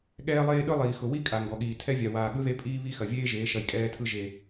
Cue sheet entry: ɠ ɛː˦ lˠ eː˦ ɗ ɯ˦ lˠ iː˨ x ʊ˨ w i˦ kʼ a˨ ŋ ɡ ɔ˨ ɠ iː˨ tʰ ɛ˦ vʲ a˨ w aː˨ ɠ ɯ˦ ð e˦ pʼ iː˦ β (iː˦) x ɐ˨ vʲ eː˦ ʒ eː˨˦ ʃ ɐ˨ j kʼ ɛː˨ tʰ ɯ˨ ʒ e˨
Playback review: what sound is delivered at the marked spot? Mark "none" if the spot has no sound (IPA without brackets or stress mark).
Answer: i˦